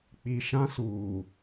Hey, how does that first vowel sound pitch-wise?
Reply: low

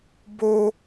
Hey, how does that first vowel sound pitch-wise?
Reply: high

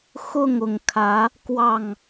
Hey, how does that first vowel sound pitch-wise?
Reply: falling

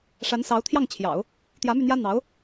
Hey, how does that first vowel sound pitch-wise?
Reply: rising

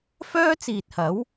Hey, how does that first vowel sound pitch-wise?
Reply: high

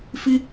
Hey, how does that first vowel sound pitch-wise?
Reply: high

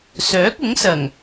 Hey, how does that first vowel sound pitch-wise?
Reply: rising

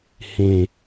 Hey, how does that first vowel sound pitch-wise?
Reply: falling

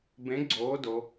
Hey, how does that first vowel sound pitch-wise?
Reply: rising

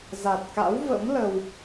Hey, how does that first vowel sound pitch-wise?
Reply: low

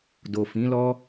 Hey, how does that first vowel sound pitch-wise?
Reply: low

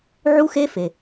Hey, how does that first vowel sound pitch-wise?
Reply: high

